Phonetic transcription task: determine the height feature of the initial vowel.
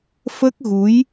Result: mid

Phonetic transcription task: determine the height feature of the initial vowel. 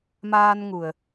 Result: low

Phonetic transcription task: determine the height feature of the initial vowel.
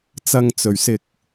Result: low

